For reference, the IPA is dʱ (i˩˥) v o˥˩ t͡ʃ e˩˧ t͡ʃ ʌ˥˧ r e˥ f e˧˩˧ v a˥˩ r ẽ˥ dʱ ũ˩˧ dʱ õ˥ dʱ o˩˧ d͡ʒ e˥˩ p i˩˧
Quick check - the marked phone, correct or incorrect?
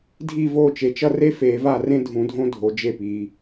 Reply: incorrect